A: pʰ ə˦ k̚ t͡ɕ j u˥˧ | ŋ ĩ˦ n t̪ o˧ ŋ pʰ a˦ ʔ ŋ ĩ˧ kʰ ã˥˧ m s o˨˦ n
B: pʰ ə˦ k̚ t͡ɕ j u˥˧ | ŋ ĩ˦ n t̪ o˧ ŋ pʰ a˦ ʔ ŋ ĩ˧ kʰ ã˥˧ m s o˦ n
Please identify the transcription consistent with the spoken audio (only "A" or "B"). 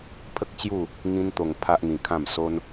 B